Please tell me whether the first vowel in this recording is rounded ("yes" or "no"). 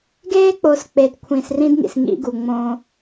no